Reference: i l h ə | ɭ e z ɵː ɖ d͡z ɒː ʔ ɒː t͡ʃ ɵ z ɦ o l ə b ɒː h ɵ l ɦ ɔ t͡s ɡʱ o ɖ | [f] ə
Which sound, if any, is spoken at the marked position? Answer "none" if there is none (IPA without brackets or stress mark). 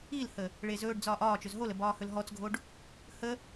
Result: h